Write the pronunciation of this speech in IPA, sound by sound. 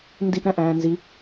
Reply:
n d i ʔ ɾ æ̃ ʔ æ̃ː n z i

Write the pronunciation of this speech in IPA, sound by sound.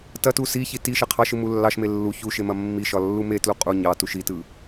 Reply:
t ɐ t u s i ç i t i ʃ ɐ qʰ ɑ ʃ ɯ m u lː ɑ ʃ m e lː u ç u ʃ e m ɐ mː i ʃ ɒ lː u m e t l u qʼ u ɲ ɑ t u ʃ i t ɯ

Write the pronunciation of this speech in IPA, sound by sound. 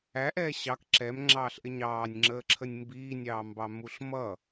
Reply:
æ ʔ ɛː ɕ ɑ k ǁ ɛ m ŋ͡ǁ ɑː ɬ ʔ ɪ ɲ ɑː nʲ ŋ͡ǁ əː ǁʰ ə nʲ m b iː nʲ ɑː m b ɑ m u ɬ m ʌ

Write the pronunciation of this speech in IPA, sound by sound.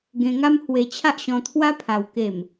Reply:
ɡ ẽ˧ ŋ a˦ m h w e˧ t͡ɕʰ a˦ ʔ ɕ ɔ̃˧ t̪ʰ w a˦ pʰ a˨˩ w k e˨˩ m

